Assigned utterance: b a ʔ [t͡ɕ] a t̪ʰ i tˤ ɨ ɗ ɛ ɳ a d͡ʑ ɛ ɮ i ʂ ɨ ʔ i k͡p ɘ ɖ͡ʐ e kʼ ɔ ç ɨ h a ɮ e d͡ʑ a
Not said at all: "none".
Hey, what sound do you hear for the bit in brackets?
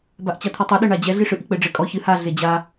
t͡ɕ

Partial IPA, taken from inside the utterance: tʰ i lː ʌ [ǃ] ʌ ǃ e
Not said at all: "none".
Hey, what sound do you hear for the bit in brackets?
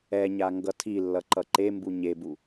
ǃ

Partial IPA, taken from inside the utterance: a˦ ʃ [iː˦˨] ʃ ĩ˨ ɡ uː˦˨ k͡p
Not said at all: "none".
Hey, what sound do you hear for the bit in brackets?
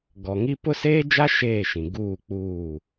eː˦˨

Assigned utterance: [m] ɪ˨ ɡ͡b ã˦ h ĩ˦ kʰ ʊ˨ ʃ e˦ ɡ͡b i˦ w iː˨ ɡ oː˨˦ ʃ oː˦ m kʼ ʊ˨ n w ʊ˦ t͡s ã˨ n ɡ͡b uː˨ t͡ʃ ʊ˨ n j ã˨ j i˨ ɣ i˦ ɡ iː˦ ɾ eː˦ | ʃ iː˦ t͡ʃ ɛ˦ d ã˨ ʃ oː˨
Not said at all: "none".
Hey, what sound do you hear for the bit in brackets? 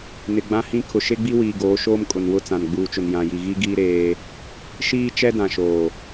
n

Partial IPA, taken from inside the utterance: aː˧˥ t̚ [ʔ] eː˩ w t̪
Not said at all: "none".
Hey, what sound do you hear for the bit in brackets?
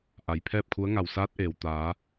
ʔ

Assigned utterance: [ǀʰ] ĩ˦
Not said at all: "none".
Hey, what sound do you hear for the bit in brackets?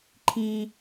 ǃʰ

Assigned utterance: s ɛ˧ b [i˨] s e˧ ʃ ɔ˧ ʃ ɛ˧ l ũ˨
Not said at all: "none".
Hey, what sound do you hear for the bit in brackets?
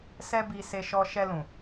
i˧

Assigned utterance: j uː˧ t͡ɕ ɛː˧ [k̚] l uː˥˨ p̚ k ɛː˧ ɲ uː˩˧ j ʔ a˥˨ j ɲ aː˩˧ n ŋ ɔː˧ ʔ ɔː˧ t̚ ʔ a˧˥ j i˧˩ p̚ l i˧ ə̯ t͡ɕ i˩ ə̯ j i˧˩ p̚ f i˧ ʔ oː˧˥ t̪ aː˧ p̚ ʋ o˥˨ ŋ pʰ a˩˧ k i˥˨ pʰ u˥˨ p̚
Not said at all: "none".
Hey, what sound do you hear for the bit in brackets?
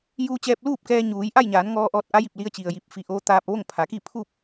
p̚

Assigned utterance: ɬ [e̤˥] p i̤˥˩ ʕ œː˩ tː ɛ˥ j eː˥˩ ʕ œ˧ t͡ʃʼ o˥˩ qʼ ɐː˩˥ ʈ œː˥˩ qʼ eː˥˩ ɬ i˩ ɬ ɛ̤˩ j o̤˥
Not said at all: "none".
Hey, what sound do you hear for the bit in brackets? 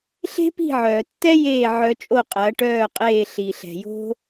e̤˥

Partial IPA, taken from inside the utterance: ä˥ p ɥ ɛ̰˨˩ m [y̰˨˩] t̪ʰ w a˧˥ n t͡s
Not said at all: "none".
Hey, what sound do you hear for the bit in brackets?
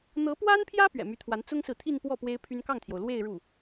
y˧˥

